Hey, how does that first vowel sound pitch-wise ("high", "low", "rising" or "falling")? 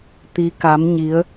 rising